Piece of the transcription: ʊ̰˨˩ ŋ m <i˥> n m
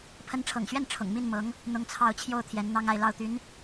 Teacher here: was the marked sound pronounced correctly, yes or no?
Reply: no